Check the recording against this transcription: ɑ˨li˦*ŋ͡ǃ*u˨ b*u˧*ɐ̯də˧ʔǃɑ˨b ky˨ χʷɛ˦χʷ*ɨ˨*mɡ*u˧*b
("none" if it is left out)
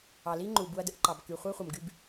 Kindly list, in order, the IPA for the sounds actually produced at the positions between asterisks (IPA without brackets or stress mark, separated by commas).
ŋ͡ǃ, u˧, ə˨, y˧